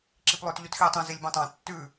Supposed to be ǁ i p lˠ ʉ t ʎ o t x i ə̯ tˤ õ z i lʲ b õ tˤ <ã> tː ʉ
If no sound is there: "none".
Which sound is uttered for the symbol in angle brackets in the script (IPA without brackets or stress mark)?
ã